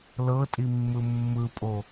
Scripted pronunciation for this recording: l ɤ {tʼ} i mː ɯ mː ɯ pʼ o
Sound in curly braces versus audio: correct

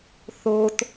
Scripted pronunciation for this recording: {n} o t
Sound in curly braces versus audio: incorrect: θ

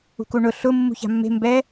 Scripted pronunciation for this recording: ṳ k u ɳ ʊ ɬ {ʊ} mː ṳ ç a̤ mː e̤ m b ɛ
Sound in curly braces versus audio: correct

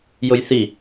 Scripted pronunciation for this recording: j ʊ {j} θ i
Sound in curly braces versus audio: correct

